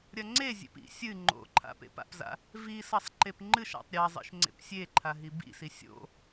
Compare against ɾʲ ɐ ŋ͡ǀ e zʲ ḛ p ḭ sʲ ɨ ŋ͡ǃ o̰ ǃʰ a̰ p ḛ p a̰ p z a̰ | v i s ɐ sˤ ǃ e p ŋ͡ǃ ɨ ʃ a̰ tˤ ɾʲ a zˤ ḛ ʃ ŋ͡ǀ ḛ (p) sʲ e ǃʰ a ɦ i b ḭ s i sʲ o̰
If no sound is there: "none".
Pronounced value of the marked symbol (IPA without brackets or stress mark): p